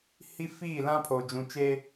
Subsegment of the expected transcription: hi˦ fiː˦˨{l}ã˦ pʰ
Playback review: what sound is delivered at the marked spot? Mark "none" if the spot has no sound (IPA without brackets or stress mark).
l